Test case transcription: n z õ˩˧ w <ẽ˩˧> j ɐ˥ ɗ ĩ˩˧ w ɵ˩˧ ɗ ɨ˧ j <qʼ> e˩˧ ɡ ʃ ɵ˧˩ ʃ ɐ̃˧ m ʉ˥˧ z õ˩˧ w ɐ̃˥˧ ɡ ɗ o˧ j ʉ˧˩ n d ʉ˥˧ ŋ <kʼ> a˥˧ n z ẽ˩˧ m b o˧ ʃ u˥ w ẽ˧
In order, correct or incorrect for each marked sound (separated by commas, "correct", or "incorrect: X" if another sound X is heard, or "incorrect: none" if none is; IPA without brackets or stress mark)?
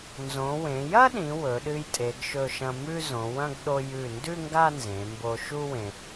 correct, incorrect: tʼ, incorrect: ɡ